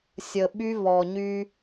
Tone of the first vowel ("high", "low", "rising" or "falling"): low